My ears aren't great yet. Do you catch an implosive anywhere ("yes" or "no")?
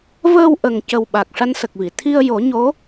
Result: yes